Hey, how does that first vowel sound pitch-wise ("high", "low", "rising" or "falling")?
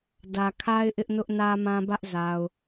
low